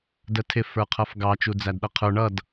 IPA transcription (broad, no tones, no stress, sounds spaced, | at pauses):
d ə tʰ ɪ f ə˞ qʰ ʌ f ɡ ɑ t͡ʃ u d͡z æ d ɗ ʌ qʰ ə˞ ɳ ʌ d